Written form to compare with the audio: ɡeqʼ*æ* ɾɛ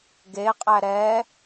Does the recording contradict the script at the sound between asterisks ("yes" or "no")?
no